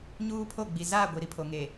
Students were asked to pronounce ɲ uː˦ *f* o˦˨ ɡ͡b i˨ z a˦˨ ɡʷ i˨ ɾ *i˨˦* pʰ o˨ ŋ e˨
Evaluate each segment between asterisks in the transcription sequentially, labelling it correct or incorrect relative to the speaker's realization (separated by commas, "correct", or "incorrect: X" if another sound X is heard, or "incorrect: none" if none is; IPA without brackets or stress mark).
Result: incorrect: pʰ, incorrect: i˦